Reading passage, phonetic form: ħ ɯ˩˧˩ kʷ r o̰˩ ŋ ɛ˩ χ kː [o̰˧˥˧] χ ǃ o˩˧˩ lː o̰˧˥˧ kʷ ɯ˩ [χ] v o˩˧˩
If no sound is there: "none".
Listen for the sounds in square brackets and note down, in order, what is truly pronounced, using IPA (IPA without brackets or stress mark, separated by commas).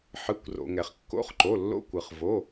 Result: o̰˧˥˧, χ